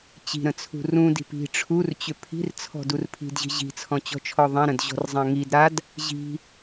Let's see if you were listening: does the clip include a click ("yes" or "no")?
no